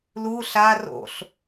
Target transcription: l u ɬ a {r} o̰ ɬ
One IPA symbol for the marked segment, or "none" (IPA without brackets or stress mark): r